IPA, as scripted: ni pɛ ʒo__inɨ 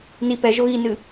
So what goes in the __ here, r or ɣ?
ɣ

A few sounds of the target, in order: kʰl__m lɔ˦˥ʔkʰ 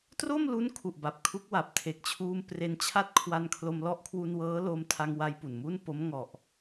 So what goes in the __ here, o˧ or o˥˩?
o˧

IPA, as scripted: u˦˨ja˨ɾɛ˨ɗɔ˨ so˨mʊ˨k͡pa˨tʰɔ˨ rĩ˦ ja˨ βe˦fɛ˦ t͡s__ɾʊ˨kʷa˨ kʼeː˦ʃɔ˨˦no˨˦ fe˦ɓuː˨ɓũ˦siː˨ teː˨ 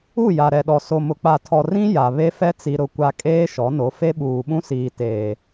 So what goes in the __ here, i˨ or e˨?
i˨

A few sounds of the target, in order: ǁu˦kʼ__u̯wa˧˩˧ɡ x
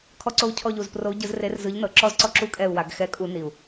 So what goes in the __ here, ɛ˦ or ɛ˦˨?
ɛ˦˨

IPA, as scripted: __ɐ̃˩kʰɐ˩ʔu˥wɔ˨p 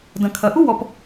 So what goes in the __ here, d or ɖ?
d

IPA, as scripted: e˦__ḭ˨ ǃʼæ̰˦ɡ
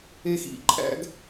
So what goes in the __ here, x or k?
x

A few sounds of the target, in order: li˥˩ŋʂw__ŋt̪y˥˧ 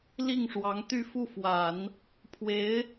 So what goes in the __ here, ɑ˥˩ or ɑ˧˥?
ɑ˧˥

